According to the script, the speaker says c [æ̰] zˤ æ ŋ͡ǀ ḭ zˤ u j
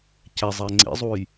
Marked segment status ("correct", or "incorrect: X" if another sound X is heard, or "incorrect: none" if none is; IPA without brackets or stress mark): incorrect: æ